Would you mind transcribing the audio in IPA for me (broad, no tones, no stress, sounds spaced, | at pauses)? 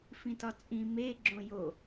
f ĩ t ɒ t͡sʼ ĩ m e ɡ͡ǁ õ j o